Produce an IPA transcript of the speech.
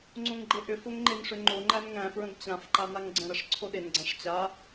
ŋ͡ǀ õ ŋ ɡ͡ǃ e ʔ ʏ f o ŋ ŋ͡ǃ e n ʂ ʏ ŋ͡ǃ o ŋ͡ǃ æ n ŋ æ̃ f ɹ ə̃ ɡ t͡ɕ ã f ǃ a n a ŋ ɡ͡ǀ ə̃ ɾ ə ʂ ǀʰ o ɗ e n ɡ͡ǀ ã ʂ t͡ɕ a

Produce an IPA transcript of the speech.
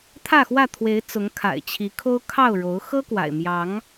t̪ʰ ä˥˨ x w ä˥˨ t̪ʰ w e˨˦ ɪ̯ t͡s ʊ˨˦ ŋ kʰ a̰˨˩ ɪ̯ t͡ɕʰ i˨˦ kʰ o˦ ʊ̯ kʰ ɑ˥˨ ʊ̯ ɻ o˨˦ ʊ̯ x ɤ˦ k w a̰˨˩ ɪ̯ m j ɑ˨˦ ŋ

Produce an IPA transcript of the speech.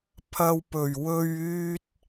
pʰ ɐ˧ w p ɵ˨˩ ɥ w ɵ˧ ɥ yː˧ t̚

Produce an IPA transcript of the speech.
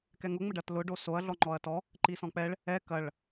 k ɛ ŋ ʊ ŋ͡m ə ɖ ɐ t l ʊ ɖ o s o ɐ̯ ɮ ɔ ŋ͡ǃ ɔ ɐ̯ t ɔ | ǃ i s ɔ̃ k͡p ɛ ɭ | ɛ k ɐ ɭ

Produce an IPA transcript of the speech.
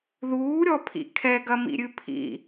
ð uː ɾʲ ɔ pʰ ḭ kʰ ɛ ɡ ɐ m ḭ ɾʲ ɨ pʰ ḭ

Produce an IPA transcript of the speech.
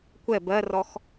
kʷ ɛ b ɜ r ɔ x

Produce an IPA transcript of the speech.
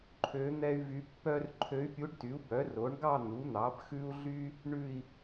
ǃʰ ø˧˥ n̪ ɛ˥ y̯ v y˧˥ pː œ˥ r ǃʰ ø˧˥ y̯ pʲ u˧˥ ɖ t y˩˥ u̯ b œ˩˥ r o˩˥ ɳ ɡ ɑ˥˧ n̪ u˩˥ n̪ ɑ˩˥ b x ʉ˥ u̯ ɮ y˥ | ɳ ʉ˥˧ i̯

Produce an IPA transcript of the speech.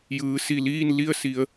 j ɯː˩˧ s i˧˩ l iː˥˨ n l i˥˨ ə̯ s i˩˧ ə̯

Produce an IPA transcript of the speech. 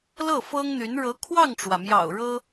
l ɤ˥˩ f ɤ˥ ŋ n̪ y˧˥ n ɻ ɤ˧˥ kʰ w ɑ˥˩ ŋ ʈ͡ʂ w ä˩ m j ɑ̰˨˩ ʊ̯ ɻ ɤ˥

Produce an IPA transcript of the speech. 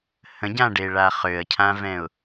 h ə̃ ɟ ã ɖ e ɭ a χ ø ə̯ cʰ ã v ɛ̃ ʊ̯

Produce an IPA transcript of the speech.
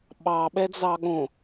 ɓ ɑ ɓ ɛ d͡z ɑ ɠ õ

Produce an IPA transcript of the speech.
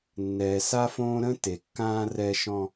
nː ɛː˨ s a˦ f õː˦ ɾ ə̃˦ t e˨ kː ãː˦ r ɛ˦ ʃ ɔ̃˦

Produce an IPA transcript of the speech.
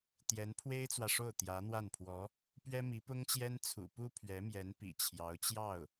t̪ j ɛ˧˥ n pʰ w e˥ ɪ̯ t͡s w ä˨ ʂ o˥˩ ʊ̯ t̪ j ä˧˥ n̪ w a˥˩ n pʰ w ɔ˧˥ | p ɥ ɛ˥ m i˧˥ p ʊ˥ ŋ t͡ɕ j ɛ˥ n t͡sʰ ṵ˨˩ p u˥ pʰ ɥ ɛ˧˥ m j ɛ˧˥ n p ḭ˨˩ t͡ɕʰ j ɑ˧˥ ʊ̯ t͡ɕ j ɑ˥˩ ʊ̯

